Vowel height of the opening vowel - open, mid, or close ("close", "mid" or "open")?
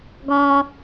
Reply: open